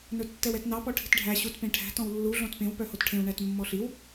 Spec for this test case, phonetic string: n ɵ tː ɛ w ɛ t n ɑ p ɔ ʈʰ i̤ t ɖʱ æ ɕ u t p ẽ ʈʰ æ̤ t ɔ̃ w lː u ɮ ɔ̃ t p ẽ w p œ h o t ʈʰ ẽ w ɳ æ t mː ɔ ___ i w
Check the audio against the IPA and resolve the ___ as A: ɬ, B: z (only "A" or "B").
A